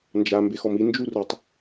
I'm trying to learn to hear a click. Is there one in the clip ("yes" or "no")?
no